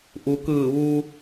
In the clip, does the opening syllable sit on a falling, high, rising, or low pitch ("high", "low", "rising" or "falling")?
low